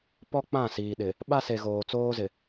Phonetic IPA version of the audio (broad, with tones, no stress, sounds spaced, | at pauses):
p ɔ˦ k͡p ã˦˨ s iː˨ ɗ ɪ˨ | ɓ a˦ s e˨ ɣ oː˨ t͡s oː˦ z ɪ˨